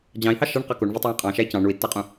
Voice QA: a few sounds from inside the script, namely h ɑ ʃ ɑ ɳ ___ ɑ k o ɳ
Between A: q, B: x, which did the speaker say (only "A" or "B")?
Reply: A